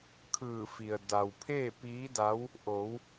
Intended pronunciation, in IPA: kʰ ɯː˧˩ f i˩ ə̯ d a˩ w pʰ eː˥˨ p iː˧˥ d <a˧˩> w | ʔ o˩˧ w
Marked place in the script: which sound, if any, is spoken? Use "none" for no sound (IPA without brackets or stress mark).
a˧˥